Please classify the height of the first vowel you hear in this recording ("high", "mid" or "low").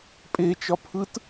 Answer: mid